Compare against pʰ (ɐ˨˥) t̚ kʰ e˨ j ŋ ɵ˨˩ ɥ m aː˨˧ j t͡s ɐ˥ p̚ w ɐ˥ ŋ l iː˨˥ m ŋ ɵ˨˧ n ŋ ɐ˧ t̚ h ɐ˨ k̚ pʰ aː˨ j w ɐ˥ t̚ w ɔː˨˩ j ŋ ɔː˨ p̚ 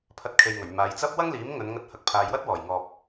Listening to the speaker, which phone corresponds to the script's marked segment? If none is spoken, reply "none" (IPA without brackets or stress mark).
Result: ɐ˨˥